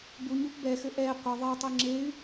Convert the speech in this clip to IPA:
b u ɲ u p b ɛ x ɘ ʔ ɛ qʷ ɘ ðˤ ɛ tˤ ɨ ŋ͡ǁ e y̯

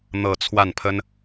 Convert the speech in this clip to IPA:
n̪ ɤ˥˧ t͡sʰ w a˥˩ n pʰ ə˥ n

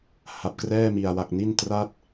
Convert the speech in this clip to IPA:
h a˨˩ p̚ k r ɛː˥˩ m i˨˩ a̯ w a˨˩ k̚ n i˥˩ n t r a˥˩ t̚

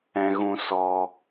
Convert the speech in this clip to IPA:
ɛ̃˧ ɣ ũ˧ s ɔ˧

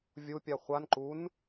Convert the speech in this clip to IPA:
vʲ u pʲ a χʷ a n ǃ u n

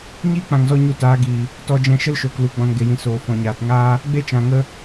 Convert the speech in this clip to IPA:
ɲ iː˦ k͡p ã˨ ŋ z ɔ˧ ɲ u˧ t aː˨˦ ɡ iː˨ | t ɔ˧ d͡ʒ ɛ̃˧ ʃ ə˦ l ʃ oː˨ k l u˨ ɡ͡b ɔ̃˨ n ɡ e˨ j ĩ˨ s oː˨ f ɔ̃˨ ɲ aː˨ t ŋ aː˦ | ɡ͡b e˦ t͡ʃ ã˨ ŋ ə˦

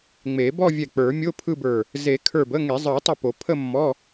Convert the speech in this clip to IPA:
ŋ͡m e˨˩˦ b ɔ˥˧ vʲ ɛ˧˩ k͡p ə˞˨˩˦ mʲ o˧˥˧ pʰ ɯ˥˧ b ə˞˧˩ | z e˨˩˦ kʰ ə˞˧˩ b ə˧˥˧ ŋ e˨˩˦ zˤ ə˞˨˩˦ tˤ ə˧˩ p o˨˩˦ pʰ ə˥˧ mː ɔ˧˥˧

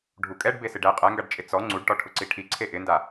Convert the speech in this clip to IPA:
ɖʱ u kʼ ɛ ɖ b e s ɪ ɖ ɛ qʼ ɛ ŋ ɡ a ɖ t͡ʃʼ ɪ t͡s ɔ ŋ͡ǀ u ɖ ʈ ɔ ʈʰ ʊ ǀ i ʈʰ i ǀʰ e ʔ ɪ n d a

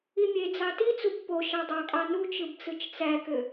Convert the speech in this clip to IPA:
i mʲ e d͡z ɑ t i t͡s u b p o ʃ ɑ dˤ ɑ kʼ ɑ n u t͡ʃ ɯ b t͡s ɯ t͡ʃ t͡s æ k ø

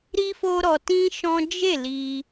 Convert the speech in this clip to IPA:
ɾ i˦ f o˦ ɾ ɔ˧ t ĩ˦ ʃ ɔ̃˦ d͡ʒ e˦˨ l i˧

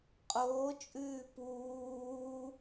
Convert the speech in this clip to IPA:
qʼ oː t͡ʃʼ ʉː p uː

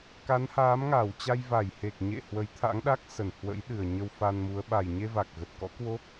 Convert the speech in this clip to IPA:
k a˨˦ n h aː˨˦ m ŋ aː˧˩ w t͡ɕ a˧ j v a˧˩ j h e˨˩ k̚ ɲ ḛ˧˨ h w ə˨˦ j t̪ʰ a̰˧˥ ŋ ɗ a˦˥ k̚ s ə˧˩ n h w ə̰˧˥ j ɗ ɨ˨˩ ə̯ ɲ ə˧ w f a˧ n m u˨˦ ə̯ ɓ a˨˩ j ɲ e˧ v a˨˩ k̚ ɣ ə˨˩ t̚ k ɔ̰˧˥ k w o˦˥ k̚

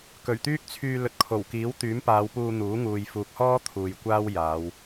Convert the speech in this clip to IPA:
k ɵ˨˩ ɥ t̪ yː˥ k̚ t͡sʰ yː˧ l ɵ˨ t̚ kʰ o˨˩ w k iː˨˥ w t̪ yː˨˥ m p aː˨˧ w p uː˧ n̪ uː˨˥ ŋ uː˨ j f uː˨ k̚ h ɔː˥ t̪ʰ uː˨ j kʷ aː˥ w j aː˨˧ w

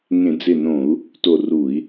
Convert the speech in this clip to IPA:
ŋ ẽ˧˩˧ d͡z ɪ˧˩ n õ˧˩˧ u̯ | t o˧˩ r u˧˩˧ i̯

